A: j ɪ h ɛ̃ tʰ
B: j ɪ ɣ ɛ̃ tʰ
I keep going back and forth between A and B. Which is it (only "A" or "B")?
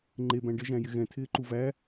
B